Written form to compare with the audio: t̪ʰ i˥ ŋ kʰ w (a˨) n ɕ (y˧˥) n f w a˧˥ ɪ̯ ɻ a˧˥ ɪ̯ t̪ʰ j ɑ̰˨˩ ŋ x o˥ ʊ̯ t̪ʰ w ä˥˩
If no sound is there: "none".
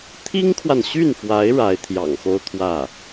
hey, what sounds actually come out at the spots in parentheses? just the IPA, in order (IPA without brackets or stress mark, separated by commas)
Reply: a˨, y˥˩